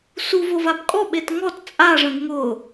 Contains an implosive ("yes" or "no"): yes